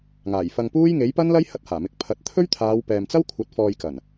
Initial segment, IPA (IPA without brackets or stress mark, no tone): ŋ